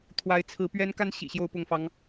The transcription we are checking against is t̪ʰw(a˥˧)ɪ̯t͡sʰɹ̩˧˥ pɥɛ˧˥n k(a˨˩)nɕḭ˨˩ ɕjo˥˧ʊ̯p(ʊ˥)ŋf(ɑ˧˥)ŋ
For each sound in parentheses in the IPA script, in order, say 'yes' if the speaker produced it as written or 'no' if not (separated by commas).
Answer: no, no, no, yes